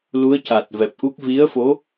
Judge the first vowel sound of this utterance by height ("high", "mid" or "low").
high